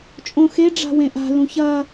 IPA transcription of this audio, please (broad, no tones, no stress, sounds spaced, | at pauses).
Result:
t͡ʃʼ õ x e ɖ͡ʐ a̤ w ẽ ʔ a̤ l ũ ç ɐ